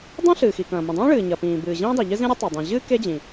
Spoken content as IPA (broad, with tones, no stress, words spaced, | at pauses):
dˤõ˥ɬɨː˩xi˩kɐ̃ː˩ mĩ˩dˤĩː˥ɭɨː˩ ɲɐ˩pĩː˩ bɨː˩ʑĩː˥dˤe˩ʎɨ˥ zĩ˥ɾʲɨ˥tˤe˩ dˤĩ˩ʑɨː˥ ke˥d͡ʑĩ˩